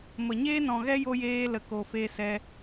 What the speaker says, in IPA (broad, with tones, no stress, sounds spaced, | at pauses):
m ə˨ ɲ eː˦ n ɔ̃˨ ɣ ɛ˦ j o˧ j eː˧ l ə˨ k o˨ f eː˧ s ɛ˧